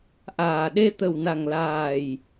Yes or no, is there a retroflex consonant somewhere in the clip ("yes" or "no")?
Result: no